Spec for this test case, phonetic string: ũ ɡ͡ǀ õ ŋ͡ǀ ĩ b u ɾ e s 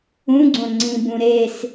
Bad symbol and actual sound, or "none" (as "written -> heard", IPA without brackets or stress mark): u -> ũ